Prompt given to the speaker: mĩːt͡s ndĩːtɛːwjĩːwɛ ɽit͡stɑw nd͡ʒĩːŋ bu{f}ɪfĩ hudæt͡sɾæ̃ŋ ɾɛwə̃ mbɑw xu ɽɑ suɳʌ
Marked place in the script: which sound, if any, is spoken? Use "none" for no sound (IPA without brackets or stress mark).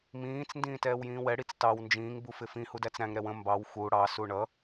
f